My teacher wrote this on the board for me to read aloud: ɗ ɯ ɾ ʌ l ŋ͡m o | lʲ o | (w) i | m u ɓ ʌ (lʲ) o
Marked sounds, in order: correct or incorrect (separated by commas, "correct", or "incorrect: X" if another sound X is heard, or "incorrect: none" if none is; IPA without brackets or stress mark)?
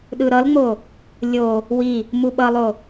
correct, incorrect: lˠ